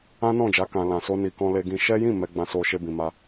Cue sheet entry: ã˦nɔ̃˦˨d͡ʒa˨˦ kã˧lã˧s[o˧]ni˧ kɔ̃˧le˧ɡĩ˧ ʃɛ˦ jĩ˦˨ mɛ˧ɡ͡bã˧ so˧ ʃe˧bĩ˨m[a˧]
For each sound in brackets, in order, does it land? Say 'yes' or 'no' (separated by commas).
no, yes